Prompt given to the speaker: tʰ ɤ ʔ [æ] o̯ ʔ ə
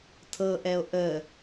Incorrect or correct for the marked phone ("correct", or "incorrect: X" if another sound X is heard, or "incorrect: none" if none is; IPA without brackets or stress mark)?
incorrect: ɛ